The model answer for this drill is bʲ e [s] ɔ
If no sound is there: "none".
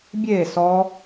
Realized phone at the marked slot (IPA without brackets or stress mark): s